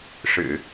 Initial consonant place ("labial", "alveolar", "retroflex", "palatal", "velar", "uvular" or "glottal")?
retroflex